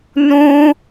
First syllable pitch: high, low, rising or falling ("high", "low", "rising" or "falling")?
high